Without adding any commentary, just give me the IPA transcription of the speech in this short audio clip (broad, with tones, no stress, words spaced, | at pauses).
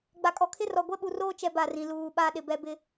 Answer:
ɡ͡ba˨kʼɔ˨kʰɪ˦rɔ˨ ɡʷɛ˦ɓu˨roː˦ t͡ʃɛ˦ba˦˨rĩ˨ luː˨ɓa˦ ɗɪ˨bɛ˦bɪ˦